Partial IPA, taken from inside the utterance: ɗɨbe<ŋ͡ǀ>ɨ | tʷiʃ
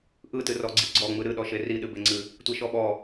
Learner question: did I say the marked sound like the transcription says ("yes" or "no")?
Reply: yes